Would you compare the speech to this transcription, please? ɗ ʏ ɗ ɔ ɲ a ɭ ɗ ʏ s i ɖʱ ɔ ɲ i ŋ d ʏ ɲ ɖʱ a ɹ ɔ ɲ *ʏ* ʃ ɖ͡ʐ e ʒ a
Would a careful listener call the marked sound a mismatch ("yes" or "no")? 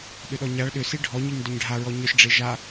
no